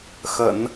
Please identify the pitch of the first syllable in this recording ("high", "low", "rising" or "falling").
low